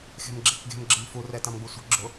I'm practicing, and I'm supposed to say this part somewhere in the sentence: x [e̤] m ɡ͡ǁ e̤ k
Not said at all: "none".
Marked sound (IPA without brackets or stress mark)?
e̤